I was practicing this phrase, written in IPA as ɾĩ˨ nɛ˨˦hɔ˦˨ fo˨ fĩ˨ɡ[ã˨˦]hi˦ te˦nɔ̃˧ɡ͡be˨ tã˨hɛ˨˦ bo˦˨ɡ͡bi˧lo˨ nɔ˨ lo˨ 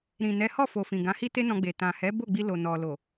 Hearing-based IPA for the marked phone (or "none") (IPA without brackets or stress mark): ã˨˦